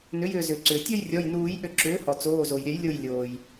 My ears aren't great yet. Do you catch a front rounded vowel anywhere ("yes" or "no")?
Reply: yes